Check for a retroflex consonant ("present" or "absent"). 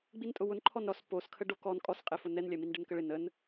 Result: present